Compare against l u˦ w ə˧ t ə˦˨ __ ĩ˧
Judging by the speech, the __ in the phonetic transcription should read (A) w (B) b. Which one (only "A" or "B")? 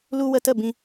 B